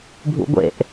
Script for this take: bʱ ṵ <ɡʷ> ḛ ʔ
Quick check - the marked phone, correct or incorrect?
correct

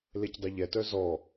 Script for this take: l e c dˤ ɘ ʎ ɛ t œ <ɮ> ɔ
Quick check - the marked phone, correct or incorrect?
incorrect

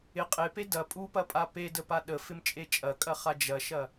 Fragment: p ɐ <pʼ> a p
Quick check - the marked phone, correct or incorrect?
correct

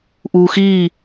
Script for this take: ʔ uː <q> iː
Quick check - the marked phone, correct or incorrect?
incorrect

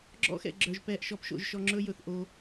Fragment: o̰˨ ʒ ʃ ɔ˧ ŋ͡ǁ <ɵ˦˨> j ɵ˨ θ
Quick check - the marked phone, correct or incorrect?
incorrect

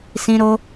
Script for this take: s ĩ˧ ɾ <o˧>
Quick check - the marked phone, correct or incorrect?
correct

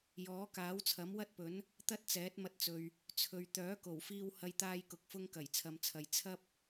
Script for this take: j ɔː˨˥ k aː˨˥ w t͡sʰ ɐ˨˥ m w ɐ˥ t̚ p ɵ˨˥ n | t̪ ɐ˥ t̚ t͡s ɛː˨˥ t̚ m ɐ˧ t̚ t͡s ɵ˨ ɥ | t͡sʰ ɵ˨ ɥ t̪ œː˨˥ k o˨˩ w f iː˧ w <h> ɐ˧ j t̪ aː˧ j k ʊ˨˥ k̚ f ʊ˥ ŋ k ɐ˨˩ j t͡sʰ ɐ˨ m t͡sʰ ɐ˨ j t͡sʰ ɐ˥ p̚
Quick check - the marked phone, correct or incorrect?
correct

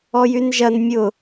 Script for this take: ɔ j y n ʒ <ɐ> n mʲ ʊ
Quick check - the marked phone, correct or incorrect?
correct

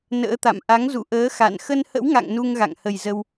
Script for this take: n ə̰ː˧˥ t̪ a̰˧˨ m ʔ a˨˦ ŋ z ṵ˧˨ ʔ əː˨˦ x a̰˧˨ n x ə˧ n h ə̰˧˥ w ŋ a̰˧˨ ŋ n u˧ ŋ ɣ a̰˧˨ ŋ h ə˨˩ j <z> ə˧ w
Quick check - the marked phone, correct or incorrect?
correct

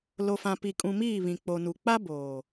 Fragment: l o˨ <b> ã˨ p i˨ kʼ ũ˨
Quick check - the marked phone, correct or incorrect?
incorrect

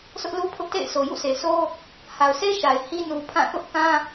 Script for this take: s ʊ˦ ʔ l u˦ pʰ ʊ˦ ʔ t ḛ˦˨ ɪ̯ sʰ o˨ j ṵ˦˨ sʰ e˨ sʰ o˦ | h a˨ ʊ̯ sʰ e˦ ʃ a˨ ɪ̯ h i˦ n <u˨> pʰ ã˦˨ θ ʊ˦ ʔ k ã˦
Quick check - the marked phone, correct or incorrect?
correct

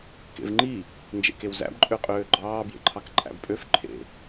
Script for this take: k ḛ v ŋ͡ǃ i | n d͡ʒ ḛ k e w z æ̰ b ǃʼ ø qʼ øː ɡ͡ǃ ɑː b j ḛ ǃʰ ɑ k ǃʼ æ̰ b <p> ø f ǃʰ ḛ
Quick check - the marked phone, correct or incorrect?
incorrect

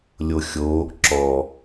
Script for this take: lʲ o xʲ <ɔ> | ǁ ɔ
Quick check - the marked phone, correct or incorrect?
incorrect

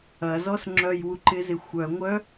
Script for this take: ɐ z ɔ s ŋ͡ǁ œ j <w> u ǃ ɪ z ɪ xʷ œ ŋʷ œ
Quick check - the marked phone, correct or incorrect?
correct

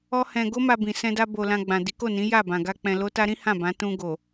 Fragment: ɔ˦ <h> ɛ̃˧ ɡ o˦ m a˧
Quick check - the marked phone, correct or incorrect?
correct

